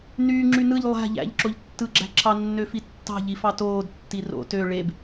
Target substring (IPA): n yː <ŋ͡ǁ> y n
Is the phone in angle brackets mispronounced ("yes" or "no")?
no